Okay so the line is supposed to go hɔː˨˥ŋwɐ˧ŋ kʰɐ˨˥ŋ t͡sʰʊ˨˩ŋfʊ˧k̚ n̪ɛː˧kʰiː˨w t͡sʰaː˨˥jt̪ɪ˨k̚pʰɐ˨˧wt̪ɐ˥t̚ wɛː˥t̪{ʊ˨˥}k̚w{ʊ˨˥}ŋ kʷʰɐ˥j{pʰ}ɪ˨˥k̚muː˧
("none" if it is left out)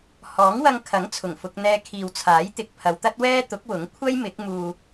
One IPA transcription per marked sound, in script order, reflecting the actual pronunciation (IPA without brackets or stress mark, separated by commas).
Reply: ʊ˨˥, ʊ˨˥, m